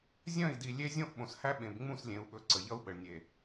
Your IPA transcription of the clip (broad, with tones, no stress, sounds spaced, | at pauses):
zʲ œ̃˦˨ i̯ d i˨ lʲ e˦ zʲ õ˦ ʔ ɓ õ˨ s h æ˦ ɓ ẽ˨ b ŋ͡m ũ˦˨ s lʲ ẽ˨ u̯ ɓ ɵ˨ ǀ ə˨ ʎ ʌ˦ u̯ ɓ ə˨ ɭ nʲ e˨